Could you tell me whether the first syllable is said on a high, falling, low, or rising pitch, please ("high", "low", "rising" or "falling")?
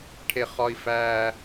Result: high